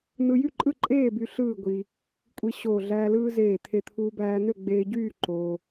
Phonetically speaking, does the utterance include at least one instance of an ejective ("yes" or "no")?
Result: yes